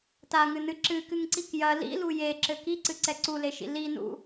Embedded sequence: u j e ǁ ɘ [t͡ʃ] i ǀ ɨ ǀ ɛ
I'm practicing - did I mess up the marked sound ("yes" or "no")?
yes